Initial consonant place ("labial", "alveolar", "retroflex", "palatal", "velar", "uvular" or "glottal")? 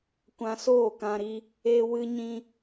velar